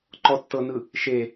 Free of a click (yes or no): no